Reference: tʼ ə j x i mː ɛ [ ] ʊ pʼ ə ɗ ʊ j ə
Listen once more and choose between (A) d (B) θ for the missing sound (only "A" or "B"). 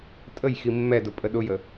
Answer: A